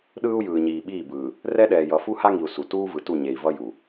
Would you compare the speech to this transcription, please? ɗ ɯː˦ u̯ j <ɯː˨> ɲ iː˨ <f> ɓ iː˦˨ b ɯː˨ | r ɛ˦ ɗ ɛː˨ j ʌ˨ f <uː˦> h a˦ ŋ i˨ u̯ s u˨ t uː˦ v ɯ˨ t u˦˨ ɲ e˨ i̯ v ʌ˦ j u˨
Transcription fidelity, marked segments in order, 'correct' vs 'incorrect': correct, incorrect: none, incorrect: u˦

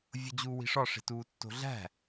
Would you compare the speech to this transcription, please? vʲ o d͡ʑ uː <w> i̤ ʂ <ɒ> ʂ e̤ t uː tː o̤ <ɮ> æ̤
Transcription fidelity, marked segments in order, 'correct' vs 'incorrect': correct, correct, correct

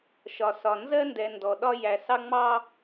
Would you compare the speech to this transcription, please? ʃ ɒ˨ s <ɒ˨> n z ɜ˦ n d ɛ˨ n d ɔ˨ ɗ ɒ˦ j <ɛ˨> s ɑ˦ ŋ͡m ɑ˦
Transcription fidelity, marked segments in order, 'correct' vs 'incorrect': correct, incorrect: æ˨

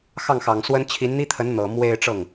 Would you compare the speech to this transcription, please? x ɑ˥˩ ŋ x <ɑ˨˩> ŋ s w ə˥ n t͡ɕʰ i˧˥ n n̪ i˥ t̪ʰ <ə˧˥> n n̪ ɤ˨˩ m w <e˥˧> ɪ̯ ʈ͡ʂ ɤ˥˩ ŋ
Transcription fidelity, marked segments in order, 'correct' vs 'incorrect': correct, correct, correct

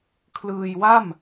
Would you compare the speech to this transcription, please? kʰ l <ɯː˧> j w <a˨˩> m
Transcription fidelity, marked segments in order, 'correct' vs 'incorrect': correct, incorrect: a˥˩

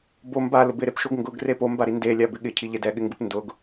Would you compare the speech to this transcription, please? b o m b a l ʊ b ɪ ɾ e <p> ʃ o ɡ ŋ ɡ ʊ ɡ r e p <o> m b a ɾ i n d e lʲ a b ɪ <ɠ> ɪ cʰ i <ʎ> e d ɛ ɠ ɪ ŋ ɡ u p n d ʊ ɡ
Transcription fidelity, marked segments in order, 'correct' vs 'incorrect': correct, correct, correct, correct

